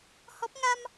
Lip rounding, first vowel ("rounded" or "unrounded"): rounded